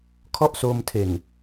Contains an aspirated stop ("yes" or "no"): yes